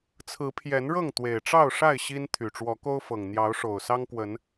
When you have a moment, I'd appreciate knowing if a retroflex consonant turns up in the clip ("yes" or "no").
yes